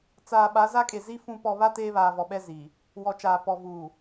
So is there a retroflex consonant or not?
no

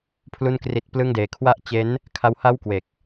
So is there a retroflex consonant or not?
no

